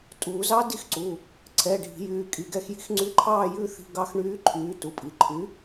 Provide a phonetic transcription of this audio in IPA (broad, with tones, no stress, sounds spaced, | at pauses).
tʼ uː˨˩˦ z ɑ˦˥ d i˦˥ x ǀ u˩˧˩ | ǀʰ ɛː˩˧˩ ɖʱ i̤˨˩˦ j yː˩˧˩ kʼ i˩˧˩ ɡ ɛ˥˧ x j i̤˦˥ x ŋ͡ǀ y˦˥ ǃʰ ɑː˥˧ j ʉː˥˧ θ i̤˧˥˧ ɡ ɑ˦˥ x ɳ yː˦˥ ǃʰ yː˨˥ t u˩˧˩ pʼ i˩˧˩ ǃʰ y˨˥